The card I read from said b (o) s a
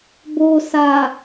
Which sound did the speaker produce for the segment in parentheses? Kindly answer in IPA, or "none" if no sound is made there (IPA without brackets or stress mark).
o